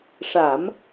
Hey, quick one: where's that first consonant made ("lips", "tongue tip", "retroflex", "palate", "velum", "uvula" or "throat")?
retroflex